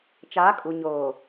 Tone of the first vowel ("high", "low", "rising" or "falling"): rising